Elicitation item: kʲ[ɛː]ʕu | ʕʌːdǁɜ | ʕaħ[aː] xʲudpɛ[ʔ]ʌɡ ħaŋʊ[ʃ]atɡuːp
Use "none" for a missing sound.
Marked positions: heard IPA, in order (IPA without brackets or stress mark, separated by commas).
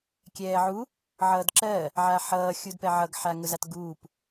ɛː, ʌː, ʕ, z